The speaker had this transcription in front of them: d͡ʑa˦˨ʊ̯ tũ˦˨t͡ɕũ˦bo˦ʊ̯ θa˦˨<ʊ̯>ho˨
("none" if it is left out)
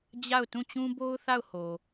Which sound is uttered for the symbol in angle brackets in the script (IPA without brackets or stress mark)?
ʊ̯